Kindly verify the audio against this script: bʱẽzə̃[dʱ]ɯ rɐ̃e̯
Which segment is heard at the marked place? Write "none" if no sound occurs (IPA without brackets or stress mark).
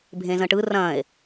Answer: ʈ